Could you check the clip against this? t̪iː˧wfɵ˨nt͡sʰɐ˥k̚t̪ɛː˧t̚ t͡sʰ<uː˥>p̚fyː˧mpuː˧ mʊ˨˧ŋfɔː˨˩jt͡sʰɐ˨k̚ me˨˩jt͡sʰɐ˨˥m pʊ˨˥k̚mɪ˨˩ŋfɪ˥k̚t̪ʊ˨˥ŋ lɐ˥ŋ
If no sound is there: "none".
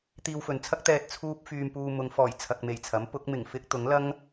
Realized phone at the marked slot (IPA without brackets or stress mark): uː˥